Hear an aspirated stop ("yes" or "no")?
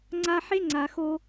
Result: no